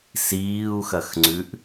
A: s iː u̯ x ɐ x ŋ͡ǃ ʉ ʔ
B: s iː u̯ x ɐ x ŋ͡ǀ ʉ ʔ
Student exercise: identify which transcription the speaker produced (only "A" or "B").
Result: B